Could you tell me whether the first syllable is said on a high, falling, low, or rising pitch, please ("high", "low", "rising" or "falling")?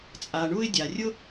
low